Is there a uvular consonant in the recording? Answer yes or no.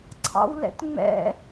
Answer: no